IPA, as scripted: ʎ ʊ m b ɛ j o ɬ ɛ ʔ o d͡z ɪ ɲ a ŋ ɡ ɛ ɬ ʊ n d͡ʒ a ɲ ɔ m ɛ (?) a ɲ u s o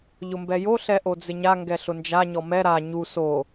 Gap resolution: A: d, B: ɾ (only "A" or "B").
B